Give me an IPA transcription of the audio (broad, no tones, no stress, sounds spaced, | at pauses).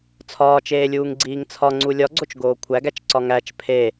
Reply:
t͡sʰ ɒː t͡ʃ eː lʲ uː ŋ ɡ͡ǀ iː ŋ t͡sʰ ɒ ŋ͡ǀ u lʲ ɒ ɡ͡ǀ o t͡ʃ ɡ oː kʷʰ æ ɡ æ t͡ʃ ǀ ɒ ŋ æ t͡ʃ pʰ e